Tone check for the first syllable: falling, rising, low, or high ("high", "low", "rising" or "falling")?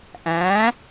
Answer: rising